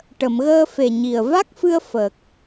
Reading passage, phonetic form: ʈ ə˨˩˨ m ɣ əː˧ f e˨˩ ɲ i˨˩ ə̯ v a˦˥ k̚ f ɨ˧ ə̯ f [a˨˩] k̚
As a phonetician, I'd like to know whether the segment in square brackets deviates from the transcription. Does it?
yes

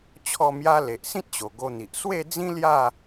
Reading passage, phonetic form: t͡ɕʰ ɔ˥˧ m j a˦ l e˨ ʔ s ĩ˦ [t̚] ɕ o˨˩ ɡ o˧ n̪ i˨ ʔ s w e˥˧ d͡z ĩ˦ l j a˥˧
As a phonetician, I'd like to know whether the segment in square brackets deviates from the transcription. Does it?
no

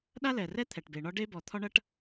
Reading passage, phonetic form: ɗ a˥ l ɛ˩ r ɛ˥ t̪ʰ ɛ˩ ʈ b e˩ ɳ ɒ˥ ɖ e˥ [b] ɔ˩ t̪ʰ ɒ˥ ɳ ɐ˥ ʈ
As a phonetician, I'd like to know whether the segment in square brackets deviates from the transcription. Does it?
no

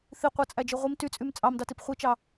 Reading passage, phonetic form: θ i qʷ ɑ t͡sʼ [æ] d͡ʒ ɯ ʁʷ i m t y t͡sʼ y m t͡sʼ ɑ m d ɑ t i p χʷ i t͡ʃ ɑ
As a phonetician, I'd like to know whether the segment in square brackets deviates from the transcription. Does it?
no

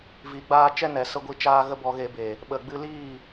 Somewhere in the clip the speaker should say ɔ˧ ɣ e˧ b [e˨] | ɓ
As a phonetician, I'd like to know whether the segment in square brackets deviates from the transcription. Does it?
no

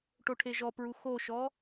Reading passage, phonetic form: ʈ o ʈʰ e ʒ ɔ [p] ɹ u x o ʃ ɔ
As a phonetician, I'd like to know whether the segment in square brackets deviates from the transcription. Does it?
no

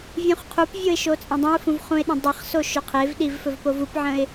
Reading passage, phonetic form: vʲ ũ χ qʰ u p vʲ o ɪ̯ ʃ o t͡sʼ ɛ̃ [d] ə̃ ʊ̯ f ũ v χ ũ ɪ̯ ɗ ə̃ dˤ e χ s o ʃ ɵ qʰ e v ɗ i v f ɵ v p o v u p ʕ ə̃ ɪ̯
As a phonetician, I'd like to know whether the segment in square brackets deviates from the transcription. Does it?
yes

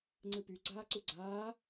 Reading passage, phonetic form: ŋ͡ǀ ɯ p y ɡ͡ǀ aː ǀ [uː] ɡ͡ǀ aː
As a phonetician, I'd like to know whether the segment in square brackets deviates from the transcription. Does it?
yes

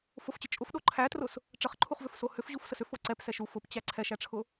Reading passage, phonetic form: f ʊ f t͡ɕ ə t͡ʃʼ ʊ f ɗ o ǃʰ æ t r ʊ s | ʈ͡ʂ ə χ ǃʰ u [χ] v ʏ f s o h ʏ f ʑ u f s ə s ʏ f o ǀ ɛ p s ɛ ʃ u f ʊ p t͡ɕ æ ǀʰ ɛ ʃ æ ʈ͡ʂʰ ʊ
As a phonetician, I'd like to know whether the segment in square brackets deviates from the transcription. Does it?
no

